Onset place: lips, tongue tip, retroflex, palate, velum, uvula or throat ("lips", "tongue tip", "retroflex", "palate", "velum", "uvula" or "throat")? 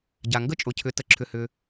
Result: palate